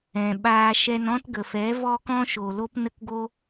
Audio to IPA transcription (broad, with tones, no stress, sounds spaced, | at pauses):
ɛ̃˨ ɓ aː˧ ʃ ɛ˧ n ɔ̃˦ t ɡ ə˨ f ɛ˨˦ v ɔ˦ k ɔ̃˦ ʃ o˨ l o˦ p n ə˦ k ɡ o˦